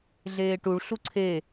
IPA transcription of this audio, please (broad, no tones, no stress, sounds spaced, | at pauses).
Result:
ɮ eː ʈ u ɭ ɬ u ǀʰ e